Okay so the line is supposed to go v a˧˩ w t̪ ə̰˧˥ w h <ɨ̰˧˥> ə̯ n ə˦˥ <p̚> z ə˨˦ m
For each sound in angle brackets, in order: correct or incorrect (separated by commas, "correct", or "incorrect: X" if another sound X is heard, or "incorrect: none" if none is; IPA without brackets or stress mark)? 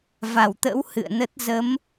incorrect: ɨ̰˧˨, incorrect: t̚